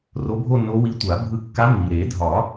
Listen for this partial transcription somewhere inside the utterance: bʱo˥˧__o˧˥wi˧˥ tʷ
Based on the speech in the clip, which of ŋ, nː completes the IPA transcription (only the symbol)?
nː